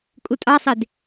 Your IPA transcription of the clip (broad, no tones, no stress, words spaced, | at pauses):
kʼutʼɑsˤed